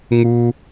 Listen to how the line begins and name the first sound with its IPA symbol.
ŋ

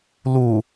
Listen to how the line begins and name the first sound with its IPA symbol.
l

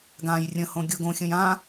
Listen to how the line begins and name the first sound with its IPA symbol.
ɡ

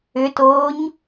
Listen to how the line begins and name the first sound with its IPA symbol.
ʏ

